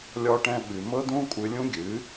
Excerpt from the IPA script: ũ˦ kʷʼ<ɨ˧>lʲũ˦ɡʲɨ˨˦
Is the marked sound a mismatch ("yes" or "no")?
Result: no